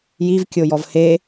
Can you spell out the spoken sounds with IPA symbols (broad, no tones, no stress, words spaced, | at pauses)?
jivkʲojɔv he